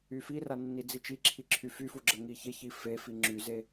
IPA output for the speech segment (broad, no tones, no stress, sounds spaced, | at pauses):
y f i r a nː i d͡z i t͡ʃ i ǁʰ i ǁʰ y f y f u ɡ͡ǁ ə ŋ i ç e ç i f e f i ŋ͡ǁ y z e